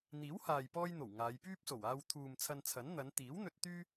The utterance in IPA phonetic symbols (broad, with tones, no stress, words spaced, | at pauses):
n̪iː˨˥whaː˨jpɔː˧jn̪o˨˩w ŋaː˨˧j pyː˥p̚so˨˩waː˧w t̪ʰuː˨m t͡sʰɐ˧nt͡sʰɐ˨˥n n̪ɐ˨˧nt̪iː˨˥wn̪ɵ˧t̚ t̪yː˥